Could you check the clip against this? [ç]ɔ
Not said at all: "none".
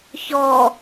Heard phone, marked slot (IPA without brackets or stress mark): ç